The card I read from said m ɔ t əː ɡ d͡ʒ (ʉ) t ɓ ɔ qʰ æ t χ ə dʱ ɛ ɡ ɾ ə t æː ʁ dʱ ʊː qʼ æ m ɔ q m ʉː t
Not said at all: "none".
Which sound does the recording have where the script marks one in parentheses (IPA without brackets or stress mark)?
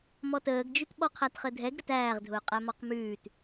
ʉ